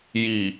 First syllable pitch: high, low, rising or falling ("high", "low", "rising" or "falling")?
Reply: low